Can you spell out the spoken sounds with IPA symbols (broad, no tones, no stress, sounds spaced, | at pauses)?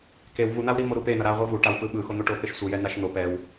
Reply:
k e w v u n̪ a w ɾ i m o ɾ u p e n ʌ ɾ a ʁʷ ɯ v u ʈ a w p ɯ ɓ ɯ x o n̪ o ʈ o p e ʃ sʷ ɯ j ɛ n a ʃ n̪ o p ɛ w